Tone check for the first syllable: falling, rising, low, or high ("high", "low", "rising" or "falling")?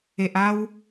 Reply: low